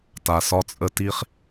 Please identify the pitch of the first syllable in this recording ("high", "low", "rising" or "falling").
low